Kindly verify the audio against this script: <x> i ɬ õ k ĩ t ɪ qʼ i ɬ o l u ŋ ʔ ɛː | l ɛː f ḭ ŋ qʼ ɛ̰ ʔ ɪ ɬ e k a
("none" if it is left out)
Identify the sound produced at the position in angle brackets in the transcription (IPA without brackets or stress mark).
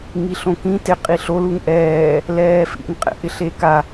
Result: ŋ